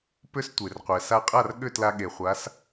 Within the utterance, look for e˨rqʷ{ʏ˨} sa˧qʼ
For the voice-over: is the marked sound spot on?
no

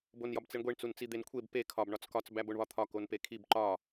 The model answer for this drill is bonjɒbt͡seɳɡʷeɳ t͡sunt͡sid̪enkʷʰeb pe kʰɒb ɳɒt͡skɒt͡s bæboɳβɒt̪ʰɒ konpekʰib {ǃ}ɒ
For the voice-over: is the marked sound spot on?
yes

